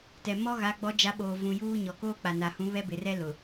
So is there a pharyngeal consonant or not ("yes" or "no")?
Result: no